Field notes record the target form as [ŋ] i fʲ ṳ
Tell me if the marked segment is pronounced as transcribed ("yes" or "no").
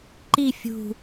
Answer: no